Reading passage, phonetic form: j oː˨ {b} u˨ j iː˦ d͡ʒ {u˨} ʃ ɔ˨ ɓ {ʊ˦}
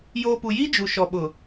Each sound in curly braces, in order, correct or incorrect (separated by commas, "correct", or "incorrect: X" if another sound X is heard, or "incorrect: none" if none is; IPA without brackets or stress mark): incorrect: p, correct, incorrect: ʊ˨